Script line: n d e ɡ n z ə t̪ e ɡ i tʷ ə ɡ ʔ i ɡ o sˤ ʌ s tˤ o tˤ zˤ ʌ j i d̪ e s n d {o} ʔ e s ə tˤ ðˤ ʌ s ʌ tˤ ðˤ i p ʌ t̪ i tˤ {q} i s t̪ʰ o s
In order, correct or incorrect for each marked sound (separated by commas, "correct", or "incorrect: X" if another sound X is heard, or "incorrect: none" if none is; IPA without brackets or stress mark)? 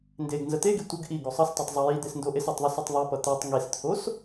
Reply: correct, incorrect: ŋ